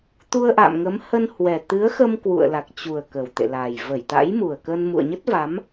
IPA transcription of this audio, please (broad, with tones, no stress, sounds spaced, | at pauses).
t̪ u˧ ə̯ ʔ a̰˧˨ m ŋ ə˨˦ m h ə˧ n h w ɛ˨˩ t̪ ɨ˨˦ ə̯ x ə˧ m k w ṵ˧˨ ə̯ l a˨˩ k̚ t͡ɕ u˨˩ ə̯ k ə˨˩ w t̪ ḛ˧˨ l a˨˩ j v ə˧˩ j t̪ a̰˧˥ j m u˨˩ ə̯ k əː˧ n m ṵ˧˨ ə̯ ɲ ə˦˥ t̚ v a˨˦ m